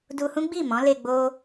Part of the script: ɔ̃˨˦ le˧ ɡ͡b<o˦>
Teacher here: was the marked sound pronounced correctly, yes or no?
yes